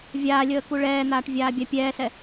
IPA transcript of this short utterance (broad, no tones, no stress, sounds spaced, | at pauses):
vʲ aː lʲ əː k u ɭ ɛː n̪ aː ʈ vʲ aː bʲ a pʲ ɛː s ɛ